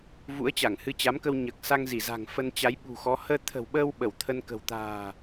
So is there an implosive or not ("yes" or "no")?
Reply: yes